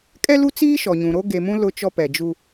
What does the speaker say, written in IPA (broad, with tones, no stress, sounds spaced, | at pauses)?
kʼ ɛ˦ l u˦ t͡s iː˦ ʃ ɔ˨ ɲ ũ˨ ɾ o˦ ɡ e˨ m ũ˦ l ʊ˦ t͡ʃ ɔ˦ p ɛ˨ d͡ʒ u˦